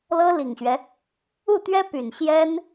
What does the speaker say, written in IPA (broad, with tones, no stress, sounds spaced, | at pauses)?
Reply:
l ɤ˥ l i˨˩ ŋ ɕ ɥ ɛ˦ | u˥˩ t̪ ɥ ɛ˥ p y˨˩ n ɕ j ɛ˥ n